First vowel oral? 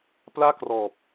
yes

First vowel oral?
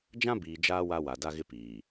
no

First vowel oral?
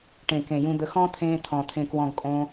no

